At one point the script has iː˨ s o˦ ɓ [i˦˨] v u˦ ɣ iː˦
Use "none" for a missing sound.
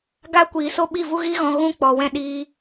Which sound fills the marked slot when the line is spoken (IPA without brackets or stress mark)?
i˦˨